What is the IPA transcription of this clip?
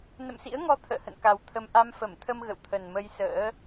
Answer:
n ə̰˧˨ m s ḭ˧˥ ə̯ ŋ ɔ˧ t̪ʰ ə̰ː˧˨ h ə̰˧˨ n k a˨˩ w t̪ʰ ə˧ m ʔ a˧ m f ə˧˩ m t̪ʰ ə˧ m ɣ ə̰˧˨ w t̪ʰ ə˨˩ n m ə˧ j s ə̰ː˧˥

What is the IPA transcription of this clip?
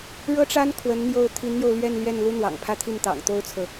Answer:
ɻ ɤ˥ ʈ͡ʂ a˥ n kʰ w ə˧˥ n n̪ j o˥˩ ʊ̯ t̪ʰ i˧˥ n n̪ j o˧ ʊ̯ l ɥ ɛ˥˧ n l ɥ ɛ˥˩ n l u˥ n̪ w ɑ̰˨˩ ŋ pʰ ä˥˧ t̪ʰ i˥˩ n t̪ ɑ̰˨˩ ŋ t̪ o˥ ʊ̯ t͡sʰ ɤ˨

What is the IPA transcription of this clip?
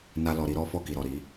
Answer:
n a˦ l ɔ˧ ɾ i˦ ɾ ɔ˦ f ɔ˦˨ k i˨ ɾ ɔ˨ ɾ i˨˦

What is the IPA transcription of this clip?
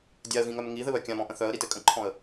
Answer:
dʲ a ə̯ ɣ ĩ ŋ œ m ŋ i ð ɘ β œ kʲ ã m ɔ̃ ʔ ə̃ θ œ ə̯ ɾ i t ɘ kʼ ə̃ ǃʰ ɔ̃ ə̯

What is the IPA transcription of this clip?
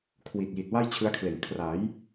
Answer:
kʰ w i˨˩ t̚ j i˨˩ t̚ w a˥˩ j t͡ɕʰ ɯ˦˥ a̯ kʰ l e˨˩ n kʰ r a˩˦ j

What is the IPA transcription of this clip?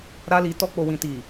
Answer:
ɾ a˧ l i˨ t ɔ˧ k͡p o˨ w ĩ˨ t i˨

